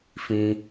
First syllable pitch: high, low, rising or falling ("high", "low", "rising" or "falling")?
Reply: high